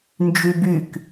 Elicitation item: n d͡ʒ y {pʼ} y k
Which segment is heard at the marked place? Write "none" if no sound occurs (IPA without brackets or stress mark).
b